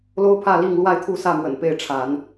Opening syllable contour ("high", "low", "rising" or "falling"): high